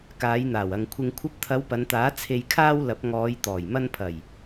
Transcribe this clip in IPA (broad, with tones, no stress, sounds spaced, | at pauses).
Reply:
k aː˨˧ j n̪ aː˨˩ w ɐ˨ ŋ kʷʰ ɪ˧ ŋ kʷʰ ɐ˧ p̚ t̪ʰ ɐ˨˧ w p ɐ˨˧ n t̪ aː˨˥ t͡sʰ e˧ j kʰ aː˥ w l ɐ˨˥ p̚ ŋ ɔː˨˧ j t̪ ɔː˨˩ j m ɐ˧ n pʰ ɐ˨˩ j